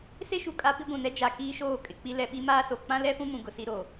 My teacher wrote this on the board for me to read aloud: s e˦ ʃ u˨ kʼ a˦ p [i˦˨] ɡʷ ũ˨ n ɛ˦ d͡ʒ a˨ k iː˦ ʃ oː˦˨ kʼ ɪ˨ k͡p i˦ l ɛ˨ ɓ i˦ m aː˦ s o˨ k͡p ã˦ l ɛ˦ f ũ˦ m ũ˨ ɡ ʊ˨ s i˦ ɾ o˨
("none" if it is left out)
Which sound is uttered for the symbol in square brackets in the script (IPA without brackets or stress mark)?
i˦